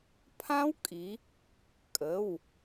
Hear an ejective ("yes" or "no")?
yes